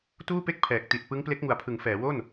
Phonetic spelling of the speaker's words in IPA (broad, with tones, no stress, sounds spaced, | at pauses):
t uː˥˩ p e˥˩ k̚ pʰ ɛː˨˩ k̚ t i˨˩ t̚ p ɯ˦˥ ŋ p l e˦˥ k̚ ŋ u˨˩ a̯ pʰ ɯ˩˦ ŋ f ɛː˩˦ w o˥˩ n